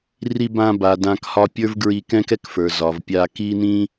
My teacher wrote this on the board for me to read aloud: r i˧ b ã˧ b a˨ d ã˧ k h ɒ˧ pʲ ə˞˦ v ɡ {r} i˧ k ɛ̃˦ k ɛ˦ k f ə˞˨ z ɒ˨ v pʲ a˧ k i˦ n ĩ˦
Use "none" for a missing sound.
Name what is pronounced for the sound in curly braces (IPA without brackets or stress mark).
ɹ